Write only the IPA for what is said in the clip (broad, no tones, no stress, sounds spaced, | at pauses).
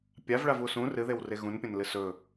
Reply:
pʲ a v ɭ a v u s ũ r ɨ ð e w r e ɣ ũ n pʲ ɐ̃ n l ɨ s ɵ